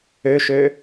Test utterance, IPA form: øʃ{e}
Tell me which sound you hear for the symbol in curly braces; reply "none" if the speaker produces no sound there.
ø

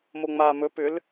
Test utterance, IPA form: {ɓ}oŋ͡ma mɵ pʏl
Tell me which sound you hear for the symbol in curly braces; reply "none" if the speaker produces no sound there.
m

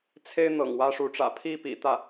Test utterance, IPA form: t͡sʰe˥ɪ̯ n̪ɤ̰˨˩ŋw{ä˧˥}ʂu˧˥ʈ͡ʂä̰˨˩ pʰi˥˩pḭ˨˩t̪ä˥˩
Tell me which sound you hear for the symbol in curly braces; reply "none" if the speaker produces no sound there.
ä˥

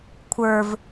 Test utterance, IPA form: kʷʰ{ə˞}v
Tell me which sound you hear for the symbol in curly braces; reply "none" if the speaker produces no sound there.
ə˞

